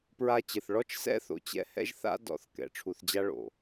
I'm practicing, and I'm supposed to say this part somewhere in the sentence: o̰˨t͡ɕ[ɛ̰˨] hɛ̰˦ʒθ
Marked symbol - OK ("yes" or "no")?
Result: no